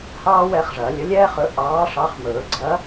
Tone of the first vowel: high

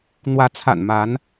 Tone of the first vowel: rising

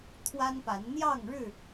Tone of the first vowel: high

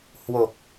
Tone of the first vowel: low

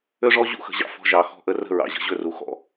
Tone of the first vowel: high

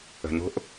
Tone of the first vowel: low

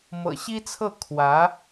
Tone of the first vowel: low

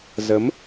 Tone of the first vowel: rising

